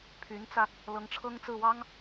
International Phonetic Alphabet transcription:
pʰy˧˥nt͡sä˧ | lɤ˧˥ŋʈ͡ʂʰɤ˥ŋt͡sɹ̩˥˩ wɑ˥ŋ

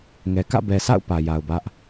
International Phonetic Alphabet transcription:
ŋɛ˨ kä̰˦˨bɛ˨sʰa̰˦˨ʊ̯ pä˨ ja˨ʊ̯bä˦ʔ

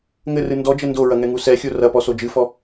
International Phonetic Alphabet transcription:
ŋɘrɨ ndɔd͡ʒɘ ndoɹɐ ŋɛŋusɛxʲo rɐpɔ sod͡ʒɨfɔ

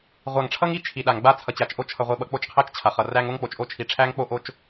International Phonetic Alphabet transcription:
ʁʷa˨ŋʈ͡ʂʰʌ˦ŋ i˦ t͡ʃʰi˨ɗa˨ŋ ɡ͡ba˦t͡sʰʌ˨t͡ɕa˨t͡ʃʔo˦ t͡ʃʰʌ˨ʁʷi˨ ɓʌ˨k͡po˦˨t͡ʃqʰæ˦t͡ʃ t͡ɕʰa˨χʌ˨ ræ˦ŋ o˦ŋk͡po˨t͡ʃ ʔo˦t͡ʃʰi˨ ʈ͡ʂʰæ˦ŋk͡po˦ʔo˦t͡ʃ

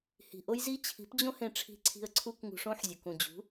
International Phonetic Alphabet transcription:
hi̤˨ʔo˦jzi˦ t͡ɕʰi̤˨˦pd͡ʑõ˦hẽ˧ʈ͡ʂʰi̤˧ ǀʰi̤˧ə̯ǀʰu˦k ŋṳ˧ʂõ˦ħzʲu˨k ũ˨d͡ʑṳ˨˦

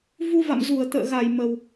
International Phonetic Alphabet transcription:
vu˧va̰˧˨mzu˧˩ə̯ t̪ə̰ː˧˨ɣa˧˩j mə˨˩w

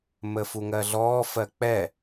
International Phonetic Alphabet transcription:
məfuŋɜɮɔː fɜk͡pɛ

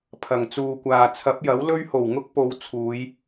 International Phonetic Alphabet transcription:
pʰɐ˨˩ŋ t͡suː˨kʷaː˨ t͡sʰɐ˨˥p̚jɐ˨˥w lɵ˥ɥho˨˩wŋʊ˥k̚po˨˧w t͡sʰuː˨˧j

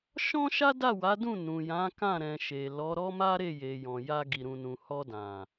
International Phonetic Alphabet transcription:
ʃɔ̃˦ʃa˦ da˦˨wa˨˦dũ˦˨ nũ˨jã˨˦kã˦˨ ɾɛ̃˨ ʃe˨lɔ˨˦ ɾɔ˦ma˦ɾe˦˨ je˨jɔ̃˨ja˧ ɡi˨ɾũ˨nũ˨ hɔ˧dã˨

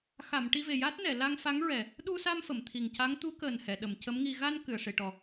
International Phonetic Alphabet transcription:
xa˨˩˨m ʈi˧ve˨˩ ja˦˥t̚nɛ˨˩˨ la˧ŋfa˧˥ŋɹɛ˨˩ | ɗu˧sa˧m fə˨˩˨mt̪ʰi˨˩ŋca˧˥ŋ t̪u˧˥kəː˨˩nhɛ˨˩˨ ɗə˨˩˨mcə˧˥mŋi˧ ɣa˧n kɨ˨˩˨ə̯ʂe˨˩˨ʈɔ˨˩

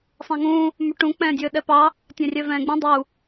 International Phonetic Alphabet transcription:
sˤɛ̃ŋũ | myʈũ k͡pɛ̃ːdʲɵːɗɛpɑ | tʲɛ̃rʲœvɛ̃ːɡ͡bũ dˤu

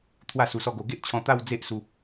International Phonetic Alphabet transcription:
t̪ʰwa˥˧ su˧sɔ˥˧ ɡo˧ ɡe˦ʔt͡ɕʰɔ̃˧ t̪a˥˧w d͡ze˦ʔsu˧

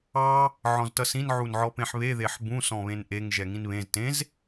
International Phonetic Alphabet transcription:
ɑ | ʕɔ̃ztʌsĩn ʕunʕɔpẽħβe ðeħbũ sɔ̃βẽnʔeŋ ʒɛŋĩnβẽz tẽz

